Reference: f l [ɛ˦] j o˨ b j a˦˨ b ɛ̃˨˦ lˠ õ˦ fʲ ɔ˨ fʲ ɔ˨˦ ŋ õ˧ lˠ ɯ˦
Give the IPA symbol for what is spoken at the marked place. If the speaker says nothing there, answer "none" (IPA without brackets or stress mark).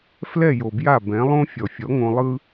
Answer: ɛ˦˨